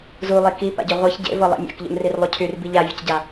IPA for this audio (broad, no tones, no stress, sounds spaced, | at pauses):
z u lˠ i k i p a̰ ɟ ø ʁʷ ɤ ç ɟ ḛ v ɤ lˠ ḭ mʲ a̰ k ʎ ṵ n r i r lˠ u cʰ y r b i ʎ a vʲ ɔ c ɟ a